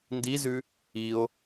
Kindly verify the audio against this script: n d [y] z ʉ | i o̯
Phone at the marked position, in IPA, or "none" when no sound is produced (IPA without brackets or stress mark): i